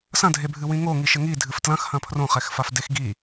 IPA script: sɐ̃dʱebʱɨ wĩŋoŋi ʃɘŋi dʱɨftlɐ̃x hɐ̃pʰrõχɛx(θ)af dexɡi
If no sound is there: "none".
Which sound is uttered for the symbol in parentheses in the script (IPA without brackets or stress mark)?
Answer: f